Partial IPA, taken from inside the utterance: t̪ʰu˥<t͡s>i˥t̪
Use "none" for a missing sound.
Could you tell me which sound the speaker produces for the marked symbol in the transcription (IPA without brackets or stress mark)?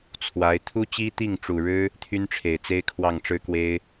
t͡ɕ